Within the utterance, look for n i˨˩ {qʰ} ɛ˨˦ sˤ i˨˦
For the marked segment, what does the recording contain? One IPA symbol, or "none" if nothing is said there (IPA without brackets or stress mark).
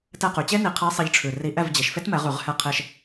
qʰ